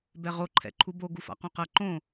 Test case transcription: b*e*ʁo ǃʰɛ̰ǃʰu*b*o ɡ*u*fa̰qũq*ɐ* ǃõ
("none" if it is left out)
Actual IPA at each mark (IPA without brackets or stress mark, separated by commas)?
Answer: ɛ, b, u, ɐ